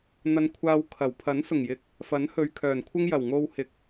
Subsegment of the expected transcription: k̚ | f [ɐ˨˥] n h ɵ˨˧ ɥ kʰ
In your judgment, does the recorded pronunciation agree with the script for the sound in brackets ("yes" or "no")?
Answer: yes